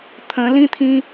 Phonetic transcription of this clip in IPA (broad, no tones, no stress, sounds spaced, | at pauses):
t̪ʰ ə̃ l ĩ t̪ʰ ĩ